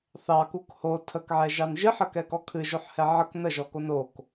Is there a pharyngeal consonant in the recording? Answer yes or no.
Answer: yes